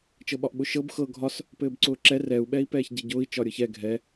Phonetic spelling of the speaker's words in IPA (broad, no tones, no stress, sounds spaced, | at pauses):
t͡ʃ ɤ ɓ ɒ ʔ ɓ ʊ ʃ ɤ b x ɤ ɡʱ ɒ s | p ɘː b ǀ ʊː ǁ ɛ r ɛ u̯ ɓ ɛ i̯ p ɛː ç ɟ e ɟ ʊː i̯ t͡ʃ ɒ ɾʲ ɤ ç ɛ ɡʱ ɛ